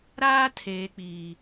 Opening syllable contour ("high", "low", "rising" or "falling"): high